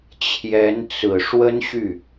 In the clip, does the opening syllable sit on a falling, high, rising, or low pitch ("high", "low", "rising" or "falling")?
rising